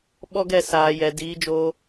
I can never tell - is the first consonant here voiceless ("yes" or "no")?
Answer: no